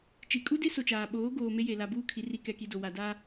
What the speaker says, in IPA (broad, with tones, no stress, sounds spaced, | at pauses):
t͡ʃ i˨ kʼ u˦ d e˦ s o˨ t͡ʃ aː˨ ɓ oː˨˦ ɡ oː˨ m e˦ j e˨ l a˨ b uː˦˨ kʰ i˨ r i˨ k ɛ˨ k i˨ d o˨ w a˨ d aː˦